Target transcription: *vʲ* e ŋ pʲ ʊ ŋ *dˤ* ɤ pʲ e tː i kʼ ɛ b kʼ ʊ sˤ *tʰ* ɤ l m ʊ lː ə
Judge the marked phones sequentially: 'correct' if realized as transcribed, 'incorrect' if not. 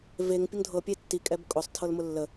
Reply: incorrect: v, incorrect: dʱ, correct

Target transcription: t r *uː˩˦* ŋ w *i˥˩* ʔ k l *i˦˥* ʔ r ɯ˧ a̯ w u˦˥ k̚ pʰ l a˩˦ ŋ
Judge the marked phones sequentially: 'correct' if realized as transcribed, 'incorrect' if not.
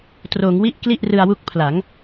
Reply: incorrect: oː˩˦, correct, incorrect: i˥˩

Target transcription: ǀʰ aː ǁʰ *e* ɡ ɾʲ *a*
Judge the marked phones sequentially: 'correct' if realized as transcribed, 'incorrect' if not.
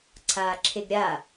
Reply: correct, correct

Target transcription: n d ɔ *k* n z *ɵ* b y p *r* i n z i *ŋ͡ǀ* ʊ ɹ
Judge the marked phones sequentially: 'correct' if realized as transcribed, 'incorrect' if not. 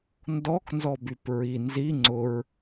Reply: correct, incorrect: ɔ, incorrect: ɹ, correct

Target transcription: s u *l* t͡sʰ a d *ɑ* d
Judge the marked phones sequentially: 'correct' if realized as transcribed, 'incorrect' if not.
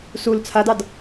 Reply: correct, correct

